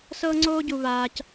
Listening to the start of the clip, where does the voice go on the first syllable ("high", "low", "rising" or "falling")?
high